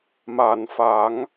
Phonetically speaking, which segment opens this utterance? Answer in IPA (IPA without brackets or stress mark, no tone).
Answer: m